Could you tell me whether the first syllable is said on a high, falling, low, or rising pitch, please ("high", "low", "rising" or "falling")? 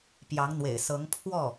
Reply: rising